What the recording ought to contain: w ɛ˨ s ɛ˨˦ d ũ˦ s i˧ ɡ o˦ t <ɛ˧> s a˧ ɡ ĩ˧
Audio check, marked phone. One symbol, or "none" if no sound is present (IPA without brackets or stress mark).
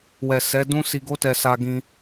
ɛ˧